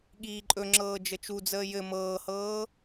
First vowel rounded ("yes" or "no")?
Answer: no